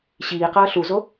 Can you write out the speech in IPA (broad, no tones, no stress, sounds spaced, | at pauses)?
ɕ iː q ʌː ɬ u z o